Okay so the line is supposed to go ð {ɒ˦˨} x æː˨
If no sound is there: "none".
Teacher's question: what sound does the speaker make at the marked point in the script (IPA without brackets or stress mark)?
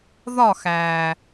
ɒ˦˨